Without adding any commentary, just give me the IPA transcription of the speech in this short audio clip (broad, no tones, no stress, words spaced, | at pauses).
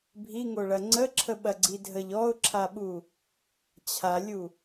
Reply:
bʱiŋoɭɐ ŋ͡ǀəǁʰəɓɐɡ͡ǀi dʱəʎ ɔʊ̯ǁʰaɓu | t͡ɕʰalʲu